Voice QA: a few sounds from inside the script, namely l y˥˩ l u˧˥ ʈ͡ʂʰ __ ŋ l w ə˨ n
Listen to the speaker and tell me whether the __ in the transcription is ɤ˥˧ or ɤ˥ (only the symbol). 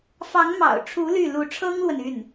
ɤ˥